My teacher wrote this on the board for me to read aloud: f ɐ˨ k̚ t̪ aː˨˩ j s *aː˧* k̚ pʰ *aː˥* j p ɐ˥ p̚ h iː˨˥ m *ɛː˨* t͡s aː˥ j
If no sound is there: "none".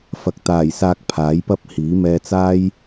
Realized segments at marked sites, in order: aː˧, aː˨˥, ɛː˧

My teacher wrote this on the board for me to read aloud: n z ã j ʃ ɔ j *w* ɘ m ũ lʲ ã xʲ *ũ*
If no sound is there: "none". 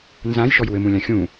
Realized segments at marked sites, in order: w, ũ

